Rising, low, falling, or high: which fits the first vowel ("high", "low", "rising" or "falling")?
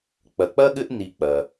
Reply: low